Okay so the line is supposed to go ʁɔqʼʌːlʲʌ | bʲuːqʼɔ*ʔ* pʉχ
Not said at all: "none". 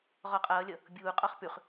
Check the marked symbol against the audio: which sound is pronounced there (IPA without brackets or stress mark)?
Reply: χ